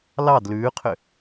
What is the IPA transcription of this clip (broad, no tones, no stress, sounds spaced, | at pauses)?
l ɑ d l ʉː qʰ ʏ